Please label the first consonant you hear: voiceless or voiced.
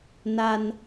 voiced